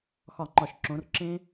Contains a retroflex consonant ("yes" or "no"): no